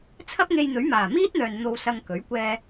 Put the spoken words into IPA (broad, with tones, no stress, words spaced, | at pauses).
t͡sʰɐ˥p̚ŋe˧jn̪ɵ˨˥ɥmaː˨˩ miː˥t̚n̪œː˨n n̪o˧wsɐ˧ŋkɵ˨˥ɥ kʷɛː˧